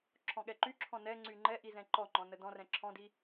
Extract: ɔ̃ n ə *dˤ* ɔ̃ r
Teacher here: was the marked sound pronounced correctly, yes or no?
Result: no